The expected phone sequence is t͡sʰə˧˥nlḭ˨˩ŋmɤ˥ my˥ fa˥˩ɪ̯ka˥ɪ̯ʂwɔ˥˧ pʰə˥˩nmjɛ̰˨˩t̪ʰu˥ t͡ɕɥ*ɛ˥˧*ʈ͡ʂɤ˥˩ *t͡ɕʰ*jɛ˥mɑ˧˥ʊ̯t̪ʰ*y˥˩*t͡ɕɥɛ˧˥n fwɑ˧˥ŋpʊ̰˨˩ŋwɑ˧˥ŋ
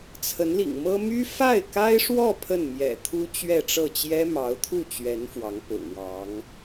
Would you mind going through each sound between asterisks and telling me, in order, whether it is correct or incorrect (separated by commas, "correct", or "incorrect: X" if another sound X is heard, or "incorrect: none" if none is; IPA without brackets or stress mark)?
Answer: correct, incorrect: t͡ɕ, incorrect: u˥˩